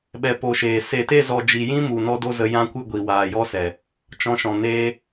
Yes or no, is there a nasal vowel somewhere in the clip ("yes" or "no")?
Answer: yes